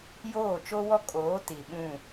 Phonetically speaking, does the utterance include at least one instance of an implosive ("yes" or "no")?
yes